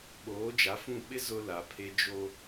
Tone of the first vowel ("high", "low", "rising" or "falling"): rising